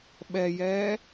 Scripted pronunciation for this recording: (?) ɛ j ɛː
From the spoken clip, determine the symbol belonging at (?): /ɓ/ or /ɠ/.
ɓ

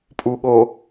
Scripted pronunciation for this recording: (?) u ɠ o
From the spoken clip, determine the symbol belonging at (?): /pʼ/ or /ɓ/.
pʼ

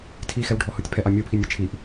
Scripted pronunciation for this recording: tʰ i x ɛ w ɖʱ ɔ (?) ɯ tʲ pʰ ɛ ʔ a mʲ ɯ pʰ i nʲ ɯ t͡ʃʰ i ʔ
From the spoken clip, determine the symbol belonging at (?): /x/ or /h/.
h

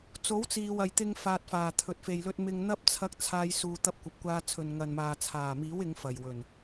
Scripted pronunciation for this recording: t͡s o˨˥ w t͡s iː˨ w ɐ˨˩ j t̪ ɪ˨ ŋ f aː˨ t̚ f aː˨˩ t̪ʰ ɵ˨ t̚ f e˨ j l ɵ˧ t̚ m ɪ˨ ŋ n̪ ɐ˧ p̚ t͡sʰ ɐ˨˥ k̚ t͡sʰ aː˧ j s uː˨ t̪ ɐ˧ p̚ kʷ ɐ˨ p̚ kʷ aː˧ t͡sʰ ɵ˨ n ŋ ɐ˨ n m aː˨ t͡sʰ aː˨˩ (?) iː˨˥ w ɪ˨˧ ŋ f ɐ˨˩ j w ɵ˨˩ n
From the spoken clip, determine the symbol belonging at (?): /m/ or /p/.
m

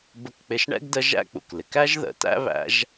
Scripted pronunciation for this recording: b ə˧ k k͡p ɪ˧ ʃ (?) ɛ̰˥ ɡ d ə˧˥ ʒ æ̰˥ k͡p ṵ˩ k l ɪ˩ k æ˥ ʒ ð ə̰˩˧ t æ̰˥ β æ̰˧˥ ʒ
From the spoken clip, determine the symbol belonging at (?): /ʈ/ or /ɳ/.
ɳ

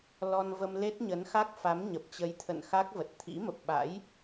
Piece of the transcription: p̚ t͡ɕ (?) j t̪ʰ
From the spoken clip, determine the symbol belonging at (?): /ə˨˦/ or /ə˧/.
ə˨˦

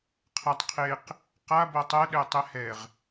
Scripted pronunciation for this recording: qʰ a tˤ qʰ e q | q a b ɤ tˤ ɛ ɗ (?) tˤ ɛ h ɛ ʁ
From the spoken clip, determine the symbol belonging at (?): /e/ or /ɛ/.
ɛ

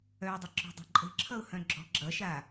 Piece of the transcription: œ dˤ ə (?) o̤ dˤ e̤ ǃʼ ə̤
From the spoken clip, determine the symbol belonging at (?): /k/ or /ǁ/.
ǁ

